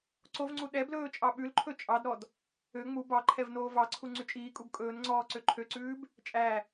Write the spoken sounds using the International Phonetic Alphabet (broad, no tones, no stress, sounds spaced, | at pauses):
ǀ o v ŋ͡ǀ u ɗ ɛ b l ɵː t͡ʃʼ ɑ ɓ ʉ l ǃʰ ɵ t͡ʃʼ ɑ d ɾ ɔ d | ø ŋ͡m u b ɑ ǃʰ ɛ v n oː v ɑ ǀʰ u ŋ͡ǀ y t͡ʃʼ iː kʼ u b kʼ ɵː n ŋ͡ǀ ɔː ǀ ø ǃʰ ø ǀ ʉː b | t͡ʃʼ æ